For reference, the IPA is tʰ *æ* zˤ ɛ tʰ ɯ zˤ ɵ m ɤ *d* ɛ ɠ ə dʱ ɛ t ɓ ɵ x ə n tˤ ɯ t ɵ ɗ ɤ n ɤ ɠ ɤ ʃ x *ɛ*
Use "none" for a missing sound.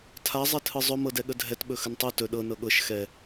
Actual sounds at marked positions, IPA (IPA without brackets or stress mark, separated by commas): a, d, ɛ